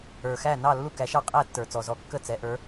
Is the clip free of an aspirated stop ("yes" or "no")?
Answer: yes